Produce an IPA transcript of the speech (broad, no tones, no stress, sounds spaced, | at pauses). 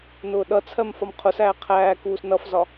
n ʊː ɗ ʌ t͡sʰ ɜ m f ɒ m qʰ ʊ s æː qʰ æː k uː s n ʌ f z ɒ